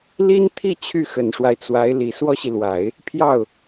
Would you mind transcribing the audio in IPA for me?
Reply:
l i˥ n t̪ʰ i˥˧ t͡ɕʰ y˥˩ x ə˨˩ n ʂ w a˦ ɪ̯ t͡s w a˧˥ ɪ̯ l i˨˩ s w ɔ˥ ɕ i˨ l w a˨˩˦ ɪ̯ | pʰ j ɑ˥˩ ʊ̯

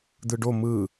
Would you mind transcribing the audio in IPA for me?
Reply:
d̪ ɯ ɖ o m ɯ

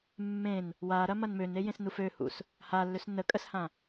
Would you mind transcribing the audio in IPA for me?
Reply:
mː ẽ n | w a ɾ ɐ m ɐ n m ø n e j ẽ s n u f ø h ṵ s | h a lː ø s n ə kʼ ə s h ã

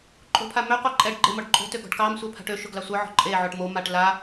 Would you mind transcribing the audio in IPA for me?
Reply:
ǃʼ o̤ pʰ a m ø qʷ ɑ ǃʼ ɛ ɖ ɡ͡ǃ e m ɔ ɖ ǃʼ o̤ t ø ɡ ɔ̤ ɖ k ɑ m sʷ ɛ pʰ a̤ ʈ ø ʃ ʊ ɡ l ɑ sʷ œ ʕ ɔ̤ ǃʼ e ʕ o ʈ m o m a ʈ l a

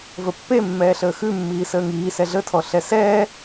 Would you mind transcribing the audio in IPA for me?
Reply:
v ə pː e mː ɛː ɬ əː x ʉ mː iː s əː ŋ iː s ɛ ɮ ə tʰ ɔ ɬ ɛ s ɛː

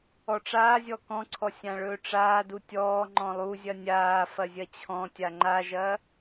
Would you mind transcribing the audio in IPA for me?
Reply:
ɔ ʈ͡ʂ aː zʲ ɔ k ɔ̃ ǀʰ ɔ sʲ ã ɭ ɵː ʈ͡ʂ aː d u tʲ ɔː ŋ͡ǃ ɔ̃ lˠ u zʲ ɐ nʲ aː f ɐ zʲ ɐ t͡ɕʰ ɔ̃ tʲ a ŋ͡ǃ a ʒ ɐ

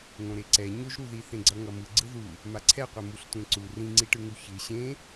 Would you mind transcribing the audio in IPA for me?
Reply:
ŋ õ ɾ e ǀ ɛ ɲ o ʒ ɾ u ð i θ ẽ ɡ͡ǀ ʌ ŋ ʌ m ɯ ɡ͡ǀ ɯ ð u | m a ǀʰ ɛ qʷ ɛ m u ɬ tʷ ẽ ǀ u r ĩ ŋ͡ǀ i ʈ ɯ ŋ u ç ɯ ɕ ẽ

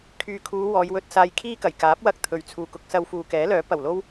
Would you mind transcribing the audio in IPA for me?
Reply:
kʰ yː˨ kʰ uː˨˧ w ɔː˨˧ j w ɵ˧ t̚ s aː˧ j kʰ iː˥ k ɐ˨˩ j k aː˨˥ p̚ w ɐ˧ k̚ t̪ʰ ɵ˨ ɥ t͡sʰ uː˨ k ʊ˧ k̚ s ɐ˧ w f uː˨ k ɛː˨˥ l œː˨˥ p ɐ˨˩ w l o˥ w

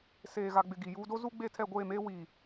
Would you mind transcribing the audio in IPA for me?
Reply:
s eː˨ ɣ a˨ ɡ͡b ɪ˨ ɡ i˨ j uː˦ d o˦ z u˦ ɡ͡b e˦˨ tʰ ɛ˦˨ ɡʷ eː˦˨ m eː˦ w i˨

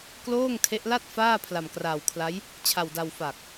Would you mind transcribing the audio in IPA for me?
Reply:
k l oː˥˩ ŋ tʰ e˦˥ ʔ l a˥˩ t̚ f aː˥˩ pʰ l a˧ m k r aː˧ w kʰ l a˦˥ j | t͡ɕʰ a˧ w d a˧ w f a˨˩ k̚

